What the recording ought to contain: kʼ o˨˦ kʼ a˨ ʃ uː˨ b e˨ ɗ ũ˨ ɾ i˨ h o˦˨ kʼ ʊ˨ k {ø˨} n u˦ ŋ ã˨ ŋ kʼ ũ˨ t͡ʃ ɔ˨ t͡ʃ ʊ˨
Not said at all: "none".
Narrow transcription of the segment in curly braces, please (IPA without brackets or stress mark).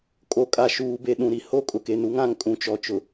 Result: e˨